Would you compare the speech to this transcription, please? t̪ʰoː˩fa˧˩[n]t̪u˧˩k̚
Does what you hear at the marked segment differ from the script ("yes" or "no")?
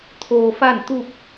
no